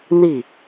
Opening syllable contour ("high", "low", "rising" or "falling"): falling